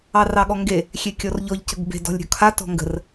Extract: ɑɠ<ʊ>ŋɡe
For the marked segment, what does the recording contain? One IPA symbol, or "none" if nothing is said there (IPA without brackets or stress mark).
ɔ